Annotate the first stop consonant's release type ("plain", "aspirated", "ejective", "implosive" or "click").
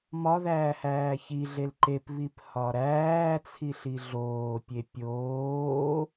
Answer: click